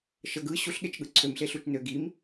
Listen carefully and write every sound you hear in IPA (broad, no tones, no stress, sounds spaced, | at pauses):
ʃ ə ɡ ɯ ɕ u ɬ ɠ e t͡ʃ ɠ ɯ ǀʰ ø m ɬ e ɬ u t͡ʃ n ø ɡ i m